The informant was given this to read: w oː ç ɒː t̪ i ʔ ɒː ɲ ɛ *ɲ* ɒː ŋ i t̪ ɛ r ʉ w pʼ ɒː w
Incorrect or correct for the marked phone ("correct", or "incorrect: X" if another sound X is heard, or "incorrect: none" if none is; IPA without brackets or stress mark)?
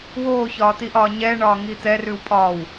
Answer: incorrect: ɳ